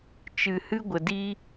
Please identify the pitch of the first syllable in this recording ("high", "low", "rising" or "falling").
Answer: low